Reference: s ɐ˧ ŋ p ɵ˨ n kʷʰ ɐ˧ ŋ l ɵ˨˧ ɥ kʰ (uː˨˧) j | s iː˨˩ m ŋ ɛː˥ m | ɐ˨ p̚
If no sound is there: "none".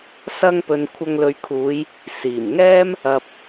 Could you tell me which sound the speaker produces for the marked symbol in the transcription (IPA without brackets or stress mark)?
uː˨˧